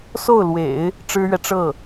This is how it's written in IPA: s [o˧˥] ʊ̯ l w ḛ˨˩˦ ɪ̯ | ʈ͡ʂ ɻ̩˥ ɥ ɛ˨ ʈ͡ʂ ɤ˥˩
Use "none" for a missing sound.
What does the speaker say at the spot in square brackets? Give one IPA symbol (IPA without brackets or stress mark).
o˥˩